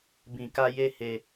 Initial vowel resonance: nasal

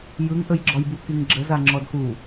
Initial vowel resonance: oral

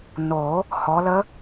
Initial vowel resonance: oral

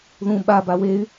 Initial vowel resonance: nasal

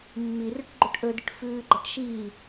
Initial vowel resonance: oral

